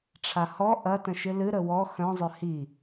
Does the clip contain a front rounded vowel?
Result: yes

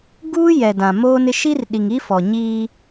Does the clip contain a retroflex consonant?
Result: no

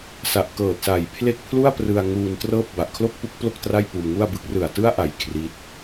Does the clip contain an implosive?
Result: no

